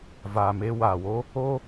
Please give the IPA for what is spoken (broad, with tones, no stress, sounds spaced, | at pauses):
v aː˨ m e˧ w aː˨ w o˦ | o˦